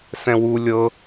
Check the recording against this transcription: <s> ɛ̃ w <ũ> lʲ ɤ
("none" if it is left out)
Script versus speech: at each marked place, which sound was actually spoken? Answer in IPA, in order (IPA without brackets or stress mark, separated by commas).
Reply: s, u